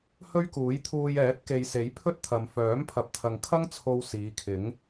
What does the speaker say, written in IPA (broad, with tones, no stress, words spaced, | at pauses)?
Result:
hɵ˥ɥkuː˨˥jt̪ʰuː˧j ɛː˨˥t̚ke˨jse˨˥j pʰɵ˥t̚t̪ʰɐ˨m fœː˨˥mpʰɐ˨p̚t̪ʰɐ˨ŋkʰɐ˥ŋ t͡sʰo˧wsiː˨˧kʰɪ˨˥ŋ